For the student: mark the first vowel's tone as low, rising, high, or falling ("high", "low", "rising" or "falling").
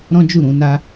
high